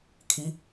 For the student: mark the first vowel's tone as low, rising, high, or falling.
rising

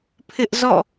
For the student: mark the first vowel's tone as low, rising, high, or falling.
high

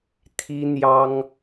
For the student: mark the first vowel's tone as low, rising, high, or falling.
high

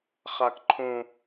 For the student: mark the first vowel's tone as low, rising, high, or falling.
high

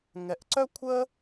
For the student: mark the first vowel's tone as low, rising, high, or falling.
low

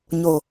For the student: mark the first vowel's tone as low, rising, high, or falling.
low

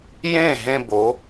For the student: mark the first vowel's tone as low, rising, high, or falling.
falling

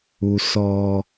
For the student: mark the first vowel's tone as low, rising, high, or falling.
low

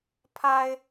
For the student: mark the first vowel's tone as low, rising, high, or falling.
high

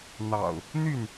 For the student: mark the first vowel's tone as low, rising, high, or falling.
low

